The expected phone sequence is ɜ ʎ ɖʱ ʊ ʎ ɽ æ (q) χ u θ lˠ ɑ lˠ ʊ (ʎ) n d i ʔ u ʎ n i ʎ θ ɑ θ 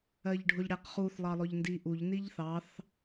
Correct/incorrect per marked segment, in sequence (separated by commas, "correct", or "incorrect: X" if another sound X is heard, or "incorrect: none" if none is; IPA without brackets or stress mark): correct, correct